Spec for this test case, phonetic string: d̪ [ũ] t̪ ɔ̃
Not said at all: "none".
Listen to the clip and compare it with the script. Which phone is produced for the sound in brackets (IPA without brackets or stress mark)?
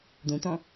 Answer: ũ